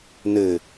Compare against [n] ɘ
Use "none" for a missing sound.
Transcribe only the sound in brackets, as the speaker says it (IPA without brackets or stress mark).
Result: n